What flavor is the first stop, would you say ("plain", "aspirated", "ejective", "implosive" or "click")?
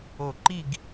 click